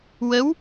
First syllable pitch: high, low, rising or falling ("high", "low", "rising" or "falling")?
rising